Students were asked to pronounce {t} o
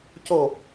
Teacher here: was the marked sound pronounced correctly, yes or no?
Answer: no